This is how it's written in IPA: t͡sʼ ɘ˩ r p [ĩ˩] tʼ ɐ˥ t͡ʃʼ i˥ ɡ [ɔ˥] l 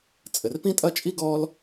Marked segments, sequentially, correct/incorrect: incorrect: ĩ˥, correct

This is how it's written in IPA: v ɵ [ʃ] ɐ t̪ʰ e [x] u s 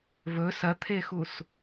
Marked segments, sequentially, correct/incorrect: incorrect: s, correct

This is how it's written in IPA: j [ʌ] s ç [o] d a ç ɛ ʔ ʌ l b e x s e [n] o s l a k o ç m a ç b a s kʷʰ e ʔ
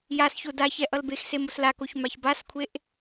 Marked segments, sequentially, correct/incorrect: incorrect: a, correct, incorrect: m

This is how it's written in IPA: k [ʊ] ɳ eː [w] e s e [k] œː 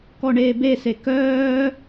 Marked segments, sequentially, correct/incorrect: incorrect: ɔ, incorrect: b, correct

